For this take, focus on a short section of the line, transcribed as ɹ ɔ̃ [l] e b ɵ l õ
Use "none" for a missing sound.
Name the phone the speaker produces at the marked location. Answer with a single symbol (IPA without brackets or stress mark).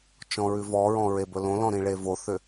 ɹ